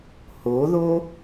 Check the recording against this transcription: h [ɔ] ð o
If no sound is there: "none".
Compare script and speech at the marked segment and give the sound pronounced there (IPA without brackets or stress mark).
o